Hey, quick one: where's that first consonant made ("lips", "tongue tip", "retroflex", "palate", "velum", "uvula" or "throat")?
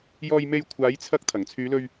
palate